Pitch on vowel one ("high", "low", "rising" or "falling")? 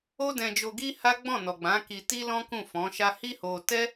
high